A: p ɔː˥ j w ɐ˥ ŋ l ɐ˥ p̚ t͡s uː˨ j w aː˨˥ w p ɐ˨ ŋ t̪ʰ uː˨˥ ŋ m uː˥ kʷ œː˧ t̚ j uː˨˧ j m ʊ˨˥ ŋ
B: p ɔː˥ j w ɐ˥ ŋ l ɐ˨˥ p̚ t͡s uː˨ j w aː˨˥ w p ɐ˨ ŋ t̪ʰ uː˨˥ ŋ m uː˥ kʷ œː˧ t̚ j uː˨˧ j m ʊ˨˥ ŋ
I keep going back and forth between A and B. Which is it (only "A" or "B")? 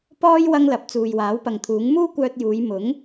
B